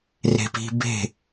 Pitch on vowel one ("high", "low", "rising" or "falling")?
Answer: high